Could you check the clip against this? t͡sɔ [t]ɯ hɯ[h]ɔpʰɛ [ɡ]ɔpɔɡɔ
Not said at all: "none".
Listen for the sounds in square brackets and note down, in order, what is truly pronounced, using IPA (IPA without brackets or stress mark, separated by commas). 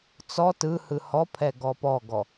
t, h, ɡ